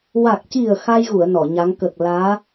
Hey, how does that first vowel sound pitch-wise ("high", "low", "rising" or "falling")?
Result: low